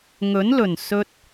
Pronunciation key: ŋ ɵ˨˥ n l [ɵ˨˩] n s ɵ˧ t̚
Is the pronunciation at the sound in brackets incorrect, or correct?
correct